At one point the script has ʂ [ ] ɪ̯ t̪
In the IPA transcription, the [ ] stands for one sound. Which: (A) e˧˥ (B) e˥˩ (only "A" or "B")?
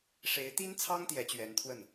A